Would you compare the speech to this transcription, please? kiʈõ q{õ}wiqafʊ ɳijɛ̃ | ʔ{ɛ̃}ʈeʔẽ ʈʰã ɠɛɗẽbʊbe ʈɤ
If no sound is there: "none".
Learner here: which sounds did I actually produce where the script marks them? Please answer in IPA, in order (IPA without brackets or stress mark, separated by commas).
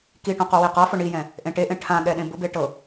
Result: o, ẽ